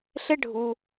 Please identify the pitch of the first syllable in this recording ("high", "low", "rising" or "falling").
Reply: high